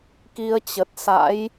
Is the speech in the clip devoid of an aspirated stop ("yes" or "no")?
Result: yes